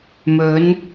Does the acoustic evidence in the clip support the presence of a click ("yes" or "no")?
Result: no